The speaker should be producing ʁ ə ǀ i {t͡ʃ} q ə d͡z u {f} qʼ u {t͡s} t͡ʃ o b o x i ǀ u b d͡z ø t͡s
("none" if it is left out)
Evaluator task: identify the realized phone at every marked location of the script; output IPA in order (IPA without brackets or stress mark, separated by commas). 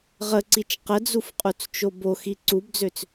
t͡ʃ, f, t͡s